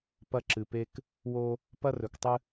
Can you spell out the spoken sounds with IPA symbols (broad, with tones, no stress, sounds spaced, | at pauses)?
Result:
p ɐ˦ ǁ ɨ˨ p e˦ k | w o˦ | p ɐ˦ r ɵ˨ k tˤ ɨ˦